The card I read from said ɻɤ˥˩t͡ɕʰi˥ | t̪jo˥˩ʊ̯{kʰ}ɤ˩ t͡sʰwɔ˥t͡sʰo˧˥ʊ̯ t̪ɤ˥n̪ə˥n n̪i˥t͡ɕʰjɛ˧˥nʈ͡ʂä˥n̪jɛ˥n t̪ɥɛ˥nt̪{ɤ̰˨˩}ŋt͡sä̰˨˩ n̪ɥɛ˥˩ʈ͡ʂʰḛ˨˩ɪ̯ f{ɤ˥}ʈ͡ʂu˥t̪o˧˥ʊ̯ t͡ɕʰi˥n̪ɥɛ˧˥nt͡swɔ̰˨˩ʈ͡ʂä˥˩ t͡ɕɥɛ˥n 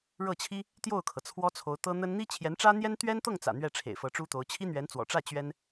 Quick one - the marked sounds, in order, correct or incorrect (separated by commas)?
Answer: correct, incorrect, incorrect